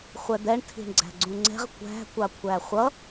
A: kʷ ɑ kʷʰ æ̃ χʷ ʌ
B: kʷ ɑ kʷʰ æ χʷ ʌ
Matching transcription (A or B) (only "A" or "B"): B